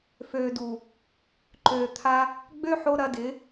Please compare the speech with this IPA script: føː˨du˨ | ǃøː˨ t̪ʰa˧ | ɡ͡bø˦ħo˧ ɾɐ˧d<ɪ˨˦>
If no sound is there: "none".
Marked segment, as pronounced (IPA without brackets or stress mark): ɪ˨˦